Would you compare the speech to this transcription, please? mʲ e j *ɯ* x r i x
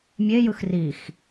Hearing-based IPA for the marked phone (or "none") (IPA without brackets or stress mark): ɯ